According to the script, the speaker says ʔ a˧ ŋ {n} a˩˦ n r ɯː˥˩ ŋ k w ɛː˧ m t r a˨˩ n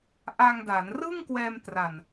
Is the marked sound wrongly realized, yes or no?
yes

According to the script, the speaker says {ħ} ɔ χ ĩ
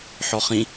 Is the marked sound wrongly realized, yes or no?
no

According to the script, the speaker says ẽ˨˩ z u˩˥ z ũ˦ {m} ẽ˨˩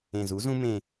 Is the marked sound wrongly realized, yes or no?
no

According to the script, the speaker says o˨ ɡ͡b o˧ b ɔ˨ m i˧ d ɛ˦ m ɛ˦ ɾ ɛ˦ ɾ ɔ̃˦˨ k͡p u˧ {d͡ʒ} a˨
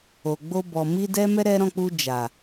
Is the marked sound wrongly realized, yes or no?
no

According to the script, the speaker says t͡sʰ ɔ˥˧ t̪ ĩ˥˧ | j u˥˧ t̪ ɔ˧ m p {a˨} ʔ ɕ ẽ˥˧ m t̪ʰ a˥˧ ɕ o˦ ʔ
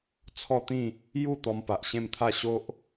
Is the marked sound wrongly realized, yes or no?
no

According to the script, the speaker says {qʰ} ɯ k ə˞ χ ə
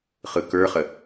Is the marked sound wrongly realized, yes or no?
yes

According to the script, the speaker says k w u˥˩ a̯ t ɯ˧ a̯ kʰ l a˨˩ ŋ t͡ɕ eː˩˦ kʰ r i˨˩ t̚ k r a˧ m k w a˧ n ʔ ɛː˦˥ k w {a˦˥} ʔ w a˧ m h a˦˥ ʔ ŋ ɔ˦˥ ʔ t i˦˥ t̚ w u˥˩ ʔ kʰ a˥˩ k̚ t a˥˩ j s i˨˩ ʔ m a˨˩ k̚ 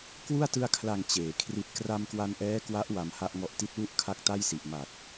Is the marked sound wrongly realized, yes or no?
no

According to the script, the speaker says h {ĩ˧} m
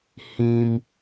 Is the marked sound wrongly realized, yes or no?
no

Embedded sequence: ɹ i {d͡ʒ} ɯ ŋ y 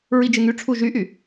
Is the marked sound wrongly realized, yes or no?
no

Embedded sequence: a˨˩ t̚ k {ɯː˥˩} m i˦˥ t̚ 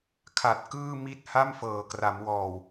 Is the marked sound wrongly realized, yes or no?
no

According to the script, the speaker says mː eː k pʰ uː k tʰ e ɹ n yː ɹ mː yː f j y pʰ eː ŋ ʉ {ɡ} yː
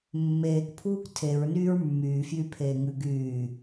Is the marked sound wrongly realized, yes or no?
no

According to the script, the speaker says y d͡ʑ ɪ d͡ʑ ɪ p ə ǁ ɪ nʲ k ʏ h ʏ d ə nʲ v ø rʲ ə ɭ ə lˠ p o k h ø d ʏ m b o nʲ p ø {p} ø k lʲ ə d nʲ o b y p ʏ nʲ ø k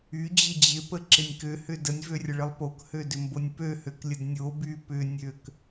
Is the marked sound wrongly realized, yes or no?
yes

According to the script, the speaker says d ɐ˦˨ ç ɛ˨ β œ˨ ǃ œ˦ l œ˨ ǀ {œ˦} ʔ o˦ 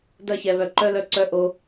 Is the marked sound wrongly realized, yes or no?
no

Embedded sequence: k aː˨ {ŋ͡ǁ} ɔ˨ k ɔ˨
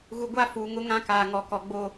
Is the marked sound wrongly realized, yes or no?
yes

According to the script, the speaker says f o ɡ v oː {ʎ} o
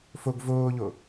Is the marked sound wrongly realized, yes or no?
no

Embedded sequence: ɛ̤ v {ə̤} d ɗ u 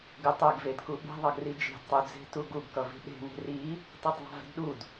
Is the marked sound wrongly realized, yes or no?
yes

